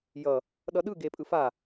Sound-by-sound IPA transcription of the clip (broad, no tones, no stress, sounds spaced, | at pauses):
j ʌ | ɗ ʌ ɗ ɯ ɡ e pʼ ɯ f a